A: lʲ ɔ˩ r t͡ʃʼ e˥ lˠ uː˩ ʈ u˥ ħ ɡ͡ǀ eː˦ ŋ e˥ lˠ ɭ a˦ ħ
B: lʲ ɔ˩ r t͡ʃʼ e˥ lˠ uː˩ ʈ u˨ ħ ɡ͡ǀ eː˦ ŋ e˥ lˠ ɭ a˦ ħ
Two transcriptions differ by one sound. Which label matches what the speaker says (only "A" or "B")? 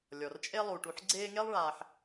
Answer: B